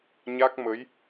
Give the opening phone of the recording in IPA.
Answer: ɲ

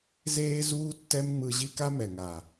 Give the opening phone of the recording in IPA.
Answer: z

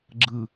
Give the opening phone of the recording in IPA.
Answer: ɡ͡ǁ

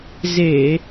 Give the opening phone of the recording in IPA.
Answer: z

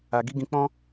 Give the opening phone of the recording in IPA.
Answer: a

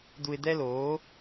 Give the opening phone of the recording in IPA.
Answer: d̪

